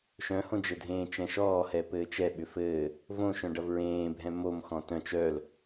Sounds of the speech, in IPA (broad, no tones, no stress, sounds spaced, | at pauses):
ʃ œ̃ h õ d͡ʒ ɘ dʱ ẽː t͡ʃ ɛ̃ ʃ ɔː h ɛ p ɘː t͡ʃ ɛ ɓ ʏ f ɘː | v õ ʃ œ̃ ɖ ɐ v ɹ ẽː bʱ ɛ̃ m o m x ɔ̃ t œ̃ t͡ʃ œ l